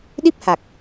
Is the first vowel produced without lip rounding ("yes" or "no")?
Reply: yes